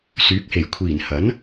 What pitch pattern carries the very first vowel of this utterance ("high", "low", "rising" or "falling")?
rising